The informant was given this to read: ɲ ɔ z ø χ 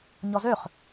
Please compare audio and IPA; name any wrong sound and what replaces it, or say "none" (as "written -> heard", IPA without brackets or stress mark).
none